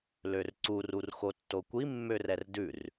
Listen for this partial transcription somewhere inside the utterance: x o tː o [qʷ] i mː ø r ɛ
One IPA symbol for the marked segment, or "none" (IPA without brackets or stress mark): kʷ